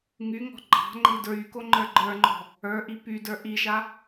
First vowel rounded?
yes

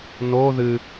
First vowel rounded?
yes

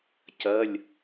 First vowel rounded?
no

